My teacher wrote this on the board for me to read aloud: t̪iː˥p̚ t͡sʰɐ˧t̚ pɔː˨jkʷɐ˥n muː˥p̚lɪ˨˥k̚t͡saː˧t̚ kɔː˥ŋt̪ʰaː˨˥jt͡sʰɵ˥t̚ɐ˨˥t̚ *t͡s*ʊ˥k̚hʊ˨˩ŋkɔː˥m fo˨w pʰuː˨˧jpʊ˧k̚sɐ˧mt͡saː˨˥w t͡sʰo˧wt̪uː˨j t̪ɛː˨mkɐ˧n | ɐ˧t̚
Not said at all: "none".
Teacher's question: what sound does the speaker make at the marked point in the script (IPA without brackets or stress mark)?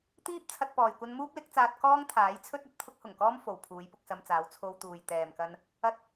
t̪ʰ